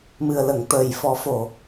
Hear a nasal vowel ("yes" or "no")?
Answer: no